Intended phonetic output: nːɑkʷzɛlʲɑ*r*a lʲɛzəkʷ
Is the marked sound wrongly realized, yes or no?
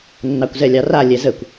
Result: no